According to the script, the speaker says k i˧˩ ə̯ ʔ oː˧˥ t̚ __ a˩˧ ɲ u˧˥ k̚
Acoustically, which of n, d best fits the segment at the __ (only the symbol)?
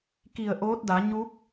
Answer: d